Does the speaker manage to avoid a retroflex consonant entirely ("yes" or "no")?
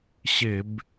yes